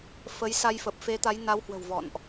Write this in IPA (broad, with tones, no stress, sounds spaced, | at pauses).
f ə˨˦ j s a˧ j f ə˨˩ p̚ f e˨˦ t̪ a˨˦ j n a˨˦ w h w ə̤˨˩ w v ɔ̰˧˨ n ʔ